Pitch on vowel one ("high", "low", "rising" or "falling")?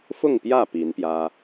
falling